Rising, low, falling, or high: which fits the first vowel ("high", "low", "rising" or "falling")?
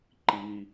low